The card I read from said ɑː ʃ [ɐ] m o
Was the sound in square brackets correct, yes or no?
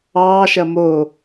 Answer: yes